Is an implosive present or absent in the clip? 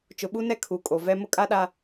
present